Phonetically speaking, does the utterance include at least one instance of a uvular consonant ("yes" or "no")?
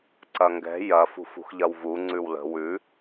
no